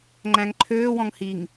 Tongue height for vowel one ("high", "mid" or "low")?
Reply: low